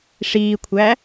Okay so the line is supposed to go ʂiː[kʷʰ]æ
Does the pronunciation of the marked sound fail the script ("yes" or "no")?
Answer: no